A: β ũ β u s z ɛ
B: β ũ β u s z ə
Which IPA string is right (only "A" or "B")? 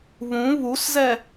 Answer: A